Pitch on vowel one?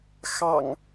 low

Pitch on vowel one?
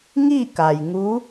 falling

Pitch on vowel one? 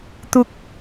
high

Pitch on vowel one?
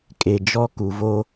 low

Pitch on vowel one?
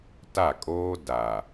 falling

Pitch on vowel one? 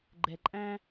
low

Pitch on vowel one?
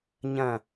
falling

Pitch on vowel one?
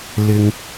low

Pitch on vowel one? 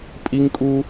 high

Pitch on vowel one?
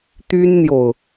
high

